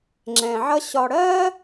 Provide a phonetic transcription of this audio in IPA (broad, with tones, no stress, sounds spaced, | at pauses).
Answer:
ŋ͡ǁ ɛ̃˩ ʕ ʌ˦ ɕ ɒ˨ ɽ ɜ˥